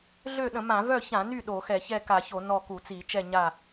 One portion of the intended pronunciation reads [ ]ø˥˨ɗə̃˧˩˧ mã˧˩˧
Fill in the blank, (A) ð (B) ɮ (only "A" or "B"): B